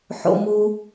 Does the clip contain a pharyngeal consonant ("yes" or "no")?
yes